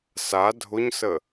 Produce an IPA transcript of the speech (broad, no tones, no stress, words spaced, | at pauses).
sa dʱʊɲsə